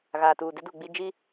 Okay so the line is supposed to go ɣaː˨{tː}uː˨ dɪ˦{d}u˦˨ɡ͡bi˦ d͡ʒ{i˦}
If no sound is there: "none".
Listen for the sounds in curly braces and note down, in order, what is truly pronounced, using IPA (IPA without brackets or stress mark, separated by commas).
t, d, i˦